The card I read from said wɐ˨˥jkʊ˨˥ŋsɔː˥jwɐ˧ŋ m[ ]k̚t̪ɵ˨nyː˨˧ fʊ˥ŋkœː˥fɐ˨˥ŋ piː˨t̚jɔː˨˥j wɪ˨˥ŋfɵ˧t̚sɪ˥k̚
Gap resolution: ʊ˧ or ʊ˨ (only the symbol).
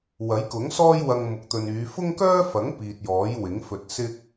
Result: ʊ˨